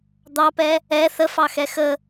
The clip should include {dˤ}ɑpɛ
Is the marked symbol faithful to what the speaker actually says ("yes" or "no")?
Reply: no